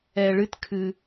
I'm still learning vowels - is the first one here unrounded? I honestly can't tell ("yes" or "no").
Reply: yes